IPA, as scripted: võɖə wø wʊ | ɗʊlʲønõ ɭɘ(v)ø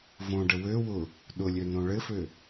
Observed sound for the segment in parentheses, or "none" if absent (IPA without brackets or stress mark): f